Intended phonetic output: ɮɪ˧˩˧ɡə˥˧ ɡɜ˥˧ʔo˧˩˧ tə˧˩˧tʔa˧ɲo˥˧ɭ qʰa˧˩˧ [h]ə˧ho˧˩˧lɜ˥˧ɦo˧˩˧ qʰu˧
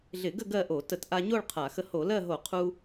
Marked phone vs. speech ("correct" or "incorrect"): incorrect